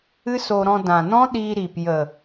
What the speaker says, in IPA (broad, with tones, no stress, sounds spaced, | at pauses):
ɨ˦ s o˧ ɾ ɔ̃˧ d ã˨ n ɔ̃˦ ɗ iː˧ ɾ i˨ p j ə˨